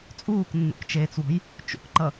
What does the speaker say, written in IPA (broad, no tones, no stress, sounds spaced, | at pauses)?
t͡sʼ uː k nː ṵ k t͡ʃ eː t͡s w ɔ̤ j | t͡ʃ ṵ k ǃ ʌ